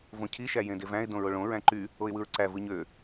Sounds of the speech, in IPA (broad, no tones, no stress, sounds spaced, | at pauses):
v õ cʰ i ʃ æ j ẽ d e v æ̃ ɪ̯ d õ ɹ o ɭ õ ɹ æ̃ ǃ y | o ɪ̯ w ɯ ɹ ǀ æ v ɯ ɲ ø